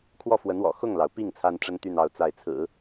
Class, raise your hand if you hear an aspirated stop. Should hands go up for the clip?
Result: yes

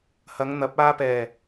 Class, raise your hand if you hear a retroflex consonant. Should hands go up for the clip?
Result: no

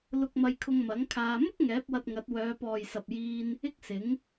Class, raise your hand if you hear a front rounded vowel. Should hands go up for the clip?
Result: yes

